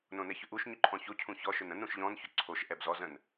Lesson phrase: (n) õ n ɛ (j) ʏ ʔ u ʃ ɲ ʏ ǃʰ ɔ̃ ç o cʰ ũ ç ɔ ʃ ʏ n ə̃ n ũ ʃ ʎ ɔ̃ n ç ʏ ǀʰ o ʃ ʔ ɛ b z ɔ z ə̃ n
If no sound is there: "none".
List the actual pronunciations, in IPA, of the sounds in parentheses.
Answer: n, ç

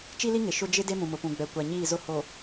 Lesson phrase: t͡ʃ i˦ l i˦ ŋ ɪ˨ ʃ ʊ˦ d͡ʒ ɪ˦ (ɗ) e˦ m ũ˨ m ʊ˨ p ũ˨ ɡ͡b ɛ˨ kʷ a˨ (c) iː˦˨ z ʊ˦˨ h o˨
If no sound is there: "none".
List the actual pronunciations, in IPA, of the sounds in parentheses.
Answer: d, ɲ

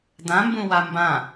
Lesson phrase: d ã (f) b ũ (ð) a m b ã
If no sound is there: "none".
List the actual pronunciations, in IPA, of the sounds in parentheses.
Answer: m, w

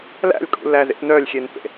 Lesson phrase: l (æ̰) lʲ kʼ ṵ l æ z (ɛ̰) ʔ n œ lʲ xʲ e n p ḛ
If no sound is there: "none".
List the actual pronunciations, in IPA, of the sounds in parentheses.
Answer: æ̰, ḛ

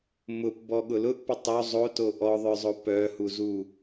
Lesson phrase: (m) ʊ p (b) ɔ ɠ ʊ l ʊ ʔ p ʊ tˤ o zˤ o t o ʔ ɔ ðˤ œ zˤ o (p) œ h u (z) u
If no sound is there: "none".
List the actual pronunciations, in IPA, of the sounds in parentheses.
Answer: m, b, p, z

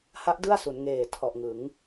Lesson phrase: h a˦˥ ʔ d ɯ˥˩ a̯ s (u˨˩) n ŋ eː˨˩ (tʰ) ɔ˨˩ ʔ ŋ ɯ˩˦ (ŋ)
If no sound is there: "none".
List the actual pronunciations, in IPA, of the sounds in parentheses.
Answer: u˩˦, tʰ, ŋ

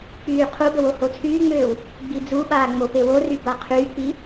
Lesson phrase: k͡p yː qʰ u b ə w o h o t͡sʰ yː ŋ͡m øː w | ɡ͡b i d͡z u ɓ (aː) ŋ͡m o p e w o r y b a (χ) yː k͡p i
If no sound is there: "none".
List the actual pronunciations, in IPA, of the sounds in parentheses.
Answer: aː, qʰ

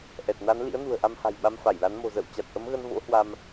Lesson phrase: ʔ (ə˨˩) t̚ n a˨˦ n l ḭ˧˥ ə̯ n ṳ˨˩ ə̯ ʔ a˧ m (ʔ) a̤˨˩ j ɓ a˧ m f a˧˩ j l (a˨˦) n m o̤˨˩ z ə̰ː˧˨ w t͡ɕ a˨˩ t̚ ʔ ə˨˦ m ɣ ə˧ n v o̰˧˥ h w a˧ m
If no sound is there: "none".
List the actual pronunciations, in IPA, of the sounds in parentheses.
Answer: ɛ˨˩, h, a˨˦

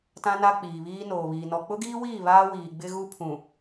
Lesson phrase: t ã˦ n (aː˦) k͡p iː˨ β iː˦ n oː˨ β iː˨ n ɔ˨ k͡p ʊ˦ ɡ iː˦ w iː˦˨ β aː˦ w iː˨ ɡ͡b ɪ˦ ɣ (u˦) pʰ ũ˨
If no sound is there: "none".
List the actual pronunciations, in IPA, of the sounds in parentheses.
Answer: a˦, u˦

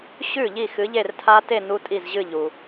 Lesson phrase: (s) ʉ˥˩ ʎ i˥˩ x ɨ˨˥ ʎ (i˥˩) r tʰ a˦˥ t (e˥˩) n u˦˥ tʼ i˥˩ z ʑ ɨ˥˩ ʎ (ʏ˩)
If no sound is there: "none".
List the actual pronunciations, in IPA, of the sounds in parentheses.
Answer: ɕ, e˥˩, e˥˩, u˩

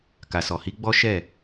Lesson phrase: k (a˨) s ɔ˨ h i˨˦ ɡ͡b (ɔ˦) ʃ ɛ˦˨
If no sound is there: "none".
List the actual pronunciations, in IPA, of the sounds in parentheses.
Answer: a˨, ɔ˦

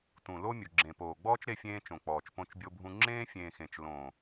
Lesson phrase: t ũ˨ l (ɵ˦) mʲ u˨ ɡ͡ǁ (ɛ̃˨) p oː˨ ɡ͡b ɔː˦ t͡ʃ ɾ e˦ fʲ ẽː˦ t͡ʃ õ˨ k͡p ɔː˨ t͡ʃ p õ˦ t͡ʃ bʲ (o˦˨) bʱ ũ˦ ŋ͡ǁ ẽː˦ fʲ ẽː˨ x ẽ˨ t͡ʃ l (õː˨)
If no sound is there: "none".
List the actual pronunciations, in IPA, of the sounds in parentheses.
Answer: o˦, ẽ˨, o˦, õː˨

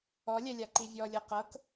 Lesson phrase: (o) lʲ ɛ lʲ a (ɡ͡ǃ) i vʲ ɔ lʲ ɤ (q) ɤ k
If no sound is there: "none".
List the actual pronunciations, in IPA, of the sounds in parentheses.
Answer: ɔ, ǃ, q

